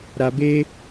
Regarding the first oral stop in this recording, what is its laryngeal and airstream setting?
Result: plain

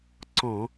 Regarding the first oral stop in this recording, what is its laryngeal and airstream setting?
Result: click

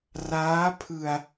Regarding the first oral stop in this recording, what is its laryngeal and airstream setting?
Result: aspirated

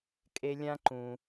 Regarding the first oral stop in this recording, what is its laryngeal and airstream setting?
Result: ejective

